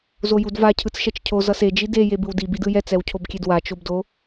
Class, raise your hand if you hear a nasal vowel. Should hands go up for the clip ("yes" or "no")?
no